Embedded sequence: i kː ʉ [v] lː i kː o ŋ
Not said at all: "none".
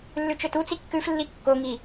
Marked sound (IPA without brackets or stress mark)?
f